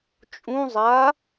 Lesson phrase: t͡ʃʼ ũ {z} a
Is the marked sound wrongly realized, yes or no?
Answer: yes